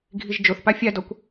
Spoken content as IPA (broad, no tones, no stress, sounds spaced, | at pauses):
ɡʱ i ʒ d͡ʒ o θ p a fʲ a d ɔ kʷ